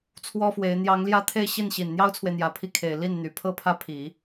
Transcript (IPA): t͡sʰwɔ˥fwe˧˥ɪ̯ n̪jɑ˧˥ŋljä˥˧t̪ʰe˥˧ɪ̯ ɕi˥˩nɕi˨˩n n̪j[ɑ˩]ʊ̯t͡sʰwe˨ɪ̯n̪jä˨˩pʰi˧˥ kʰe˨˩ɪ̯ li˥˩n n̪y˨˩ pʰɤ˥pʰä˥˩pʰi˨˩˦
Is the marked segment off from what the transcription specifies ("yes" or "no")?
yes